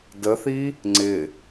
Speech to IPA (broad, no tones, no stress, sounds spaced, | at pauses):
d ə θ i | ŋ͡ǀ ɪ